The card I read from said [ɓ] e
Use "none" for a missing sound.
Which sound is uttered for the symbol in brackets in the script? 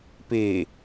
p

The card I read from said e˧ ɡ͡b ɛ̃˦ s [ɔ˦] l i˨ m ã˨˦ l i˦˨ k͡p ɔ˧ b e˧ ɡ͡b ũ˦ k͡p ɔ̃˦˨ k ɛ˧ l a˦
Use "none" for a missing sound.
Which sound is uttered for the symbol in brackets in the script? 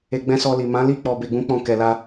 ɔ˧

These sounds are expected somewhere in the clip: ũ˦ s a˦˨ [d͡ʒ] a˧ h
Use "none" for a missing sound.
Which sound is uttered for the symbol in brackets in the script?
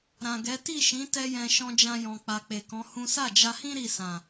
d͡ʒ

